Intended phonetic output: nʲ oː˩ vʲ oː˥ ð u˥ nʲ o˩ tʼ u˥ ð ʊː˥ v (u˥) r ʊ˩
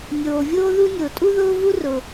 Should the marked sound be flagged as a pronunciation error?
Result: no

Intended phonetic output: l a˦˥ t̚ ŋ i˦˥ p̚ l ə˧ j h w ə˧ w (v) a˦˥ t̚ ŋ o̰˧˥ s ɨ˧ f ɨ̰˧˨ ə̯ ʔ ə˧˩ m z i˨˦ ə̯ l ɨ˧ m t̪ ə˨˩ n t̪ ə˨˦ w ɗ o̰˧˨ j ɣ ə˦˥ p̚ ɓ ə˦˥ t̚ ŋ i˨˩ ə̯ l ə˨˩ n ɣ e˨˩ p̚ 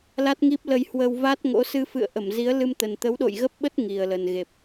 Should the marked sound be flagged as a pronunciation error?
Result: no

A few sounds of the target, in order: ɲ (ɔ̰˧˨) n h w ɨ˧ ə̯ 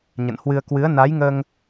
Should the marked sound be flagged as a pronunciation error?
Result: yes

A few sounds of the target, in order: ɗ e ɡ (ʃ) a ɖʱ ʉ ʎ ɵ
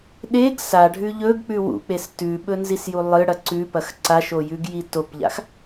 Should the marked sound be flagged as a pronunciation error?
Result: yes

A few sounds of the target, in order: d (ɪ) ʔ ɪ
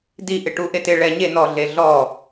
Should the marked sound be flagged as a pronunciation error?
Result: yes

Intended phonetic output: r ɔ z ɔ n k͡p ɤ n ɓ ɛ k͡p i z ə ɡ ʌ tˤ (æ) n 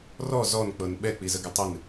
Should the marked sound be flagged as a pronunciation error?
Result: yes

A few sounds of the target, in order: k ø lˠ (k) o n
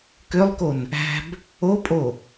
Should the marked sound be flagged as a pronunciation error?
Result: no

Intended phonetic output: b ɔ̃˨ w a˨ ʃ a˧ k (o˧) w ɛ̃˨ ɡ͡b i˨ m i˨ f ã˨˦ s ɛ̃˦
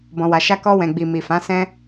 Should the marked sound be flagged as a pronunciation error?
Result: yes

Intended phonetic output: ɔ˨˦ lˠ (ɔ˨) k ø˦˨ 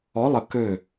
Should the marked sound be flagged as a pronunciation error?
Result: yes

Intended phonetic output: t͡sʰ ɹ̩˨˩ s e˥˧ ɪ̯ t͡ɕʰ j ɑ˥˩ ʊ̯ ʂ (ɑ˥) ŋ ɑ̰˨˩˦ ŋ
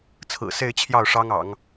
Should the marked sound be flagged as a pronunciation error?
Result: no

